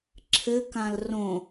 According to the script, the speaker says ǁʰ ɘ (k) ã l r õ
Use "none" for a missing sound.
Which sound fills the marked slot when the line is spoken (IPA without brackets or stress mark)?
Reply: k